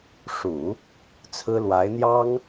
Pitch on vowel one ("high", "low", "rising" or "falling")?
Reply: low